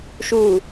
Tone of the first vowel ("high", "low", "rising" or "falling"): low